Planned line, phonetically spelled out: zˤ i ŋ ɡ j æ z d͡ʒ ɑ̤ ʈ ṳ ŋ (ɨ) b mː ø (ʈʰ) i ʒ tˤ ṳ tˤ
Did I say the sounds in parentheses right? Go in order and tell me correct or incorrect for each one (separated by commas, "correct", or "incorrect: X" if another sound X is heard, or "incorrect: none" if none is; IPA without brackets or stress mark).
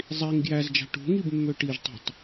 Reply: incorrect: i, incorrect: ʈ